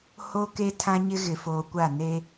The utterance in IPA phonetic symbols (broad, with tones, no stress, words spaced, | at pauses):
ho˦ke˦ tʰã˦ɲɪ˦ ɣɪ˨foː˨kʷa˦˨ ne˦